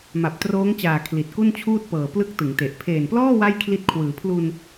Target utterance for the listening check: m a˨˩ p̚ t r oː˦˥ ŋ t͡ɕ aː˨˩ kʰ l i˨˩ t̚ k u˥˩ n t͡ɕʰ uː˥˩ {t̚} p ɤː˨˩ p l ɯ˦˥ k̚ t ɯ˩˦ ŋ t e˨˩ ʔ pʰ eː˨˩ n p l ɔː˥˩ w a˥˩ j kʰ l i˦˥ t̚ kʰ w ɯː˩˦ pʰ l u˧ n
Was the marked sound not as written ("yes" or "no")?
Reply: no